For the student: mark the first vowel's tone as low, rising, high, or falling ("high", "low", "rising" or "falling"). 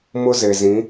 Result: high